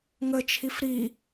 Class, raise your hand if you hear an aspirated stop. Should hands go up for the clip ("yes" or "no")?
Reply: yes